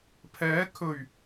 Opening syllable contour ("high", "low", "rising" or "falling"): rising